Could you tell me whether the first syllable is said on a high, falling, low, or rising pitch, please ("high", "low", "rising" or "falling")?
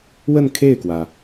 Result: falling